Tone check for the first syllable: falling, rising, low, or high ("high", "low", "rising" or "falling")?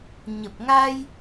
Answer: low